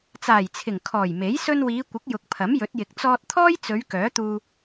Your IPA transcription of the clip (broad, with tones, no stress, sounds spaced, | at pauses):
t͡s aː˨˩ j t͡sʰ ɪ˨˩ ŋ kʰ ɔː˨˩ j m e˨˥ j s ɵ˧ n w iː˨˧ kʷ ɪ˨˥ k̚ j ʊ˨ k̚ pʰ ɐ˨˥ m j ɵ˨˥ t̚ j ɪ˨ k̚ t͡s ɔː˧ t̚ t̪ʰ ɔː˥ j t͡s ɵ˨˧ ɥ k œː˨˥ t̪ uː˧